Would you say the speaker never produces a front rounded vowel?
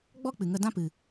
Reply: yes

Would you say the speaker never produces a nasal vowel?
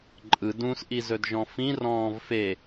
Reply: no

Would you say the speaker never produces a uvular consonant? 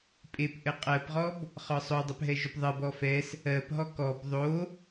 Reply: no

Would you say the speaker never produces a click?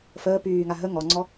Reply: no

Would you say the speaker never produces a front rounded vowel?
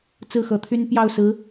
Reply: no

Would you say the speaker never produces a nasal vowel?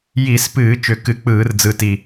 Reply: yes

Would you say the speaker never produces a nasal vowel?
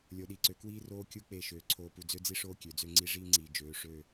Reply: yes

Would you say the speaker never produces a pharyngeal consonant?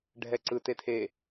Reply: yes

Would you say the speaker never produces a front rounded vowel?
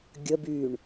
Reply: no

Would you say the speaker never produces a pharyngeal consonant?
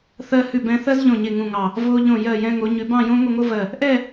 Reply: yes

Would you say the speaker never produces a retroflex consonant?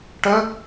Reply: no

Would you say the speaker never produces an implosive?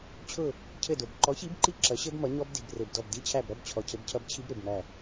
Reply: yes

